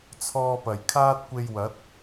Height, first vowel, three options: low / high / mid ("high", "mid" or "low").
mid